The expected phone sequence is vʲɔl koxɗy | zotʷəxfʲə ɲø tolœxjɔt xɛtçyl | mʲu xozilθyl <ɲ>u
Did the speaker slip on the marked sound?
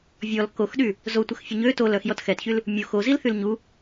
no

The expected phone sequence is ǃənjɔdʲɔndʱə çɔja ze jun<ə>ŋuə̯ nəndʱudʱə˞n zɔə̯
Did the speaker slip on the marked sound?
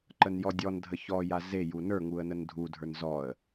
yes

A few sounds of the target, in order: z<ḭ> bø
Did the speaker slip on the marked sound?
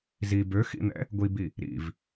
yes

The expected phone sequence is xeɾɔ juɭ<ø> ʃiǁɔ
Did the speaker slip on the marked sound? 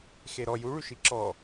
yes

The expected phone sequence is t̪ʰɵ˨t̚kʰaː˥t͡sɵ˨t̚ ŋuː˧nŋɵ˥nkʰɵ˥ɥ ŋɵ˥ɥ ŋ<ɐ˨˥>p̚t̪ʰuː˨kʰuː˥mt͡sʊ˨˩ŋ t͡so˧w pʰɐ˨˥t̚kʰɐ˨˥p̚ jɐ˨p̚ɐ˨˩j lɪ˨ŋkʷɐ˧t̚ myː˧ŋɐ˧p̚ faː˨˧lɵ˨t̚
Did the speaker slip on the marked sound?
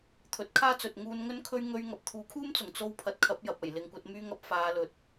yes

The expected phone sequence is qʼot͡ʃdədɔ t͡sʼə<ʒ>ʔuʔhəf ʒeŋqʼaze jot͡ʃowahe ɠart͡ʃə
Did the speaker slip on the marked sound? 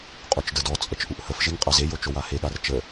yes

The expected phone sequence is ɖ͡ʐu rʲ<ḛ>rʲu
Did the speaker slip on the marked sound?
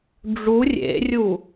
no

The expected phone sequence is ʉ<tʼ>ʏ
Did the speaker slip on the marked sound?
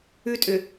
no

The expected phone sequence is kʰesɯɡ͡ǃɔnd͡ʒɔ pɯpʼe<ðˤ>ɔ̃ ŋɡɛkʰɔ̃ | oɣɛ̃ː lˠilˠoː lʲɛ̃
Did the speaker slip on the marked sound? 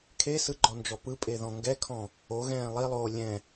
yes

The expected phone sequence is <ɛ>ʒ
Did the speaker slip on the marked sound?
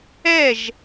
no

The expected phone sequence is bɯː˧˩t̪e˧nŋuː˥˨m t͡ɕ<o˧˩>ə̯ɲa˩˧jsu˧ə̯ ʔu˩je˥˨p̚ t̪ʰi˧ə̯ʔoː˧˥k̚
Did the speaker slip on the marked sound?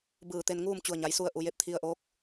yes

